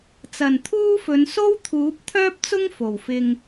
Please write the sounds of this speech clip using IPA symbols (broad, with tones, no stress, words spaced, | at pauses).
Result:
t͡sɐ˨˩nt̪ʰuː˥fɵ˨˧n so˥wt̪ʰuː˨˥p̚t̪ʰœː˥p̚t͡sʊ˥ŋ fo˨˩wfɪ˧ŋ